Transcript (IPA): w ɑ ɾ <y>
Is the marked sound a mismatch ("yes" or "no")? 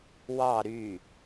no